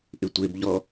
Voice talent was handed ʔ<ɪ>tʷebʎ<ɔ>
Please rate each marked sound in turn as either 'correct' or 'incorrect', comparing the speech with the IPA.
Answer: correct, correct

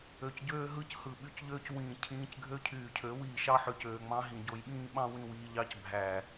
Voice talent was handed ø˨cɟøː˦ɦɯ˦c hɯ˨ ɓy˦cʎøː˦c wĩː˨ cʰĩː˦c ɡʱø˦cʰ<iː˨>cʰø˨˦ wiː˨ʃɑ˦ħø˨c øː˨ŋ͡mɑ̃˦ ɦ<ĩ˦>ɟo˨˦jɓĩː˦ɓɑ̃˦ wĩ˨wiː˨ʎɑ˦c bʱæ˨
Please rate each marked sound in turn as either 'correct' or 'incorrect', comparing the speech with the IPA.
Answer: incorrect: yː˨, incorrect: ĩ˨

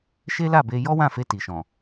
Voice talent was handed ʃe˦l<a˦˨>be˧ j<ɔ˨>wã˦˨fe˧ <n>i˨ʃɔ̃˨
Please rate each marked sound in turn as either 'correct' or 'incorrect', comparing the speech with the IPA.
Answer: correct, incorrect: ɔ˦, incorrect: t

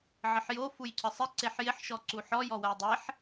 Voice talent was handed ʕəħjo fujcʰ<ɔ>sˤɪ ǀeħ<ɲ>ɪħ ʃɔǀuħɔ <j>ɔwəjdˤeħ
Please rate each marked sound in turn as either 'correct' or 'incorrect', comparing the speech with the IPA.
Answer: incorrect: ə, incorrect: j, correct

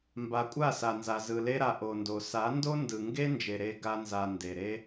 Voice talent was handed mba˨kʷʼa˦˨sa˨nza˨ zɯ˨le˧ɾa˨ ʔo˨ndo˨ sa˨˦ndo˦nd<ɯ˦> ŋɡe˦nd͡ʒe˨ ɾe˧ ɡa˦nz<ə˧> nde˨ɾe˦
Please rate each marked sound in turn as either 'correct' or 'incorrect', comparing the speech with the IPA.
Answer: incorrect: ɯ˨, incorrect: a˧

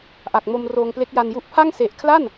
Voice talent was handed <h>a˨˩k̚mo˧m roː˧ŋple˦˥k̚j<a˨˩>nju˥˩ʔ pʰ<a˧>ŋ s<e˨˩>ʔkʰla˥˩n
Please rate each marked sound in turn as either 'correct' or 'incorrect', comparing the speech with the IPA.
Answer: incorrect: ʔ, incorrect: a˧, incorrect: a˥˩, correct

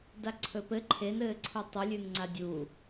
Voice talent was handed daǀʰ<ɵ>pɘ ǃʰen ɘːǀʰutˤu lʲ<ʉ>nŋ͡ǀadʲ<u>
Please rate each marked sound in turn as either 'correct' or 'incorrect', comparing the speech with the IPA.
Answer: correct, correct, correct

